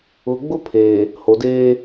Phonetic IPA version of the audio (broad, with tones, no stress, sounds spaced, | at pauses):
ʊ˨ ɡ͡b ʊ˦ pʰ eː˨ | h o˨ d eː˦